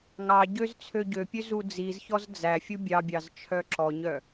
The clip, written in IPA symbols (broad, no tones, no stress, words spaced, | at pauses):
ŋɑɟøz t͡sʰøɟøpʲø zud͡zizçɔz d͡zæfʲu bʲɑbʲɑzt͡ʃʰœ ǁɔɲœ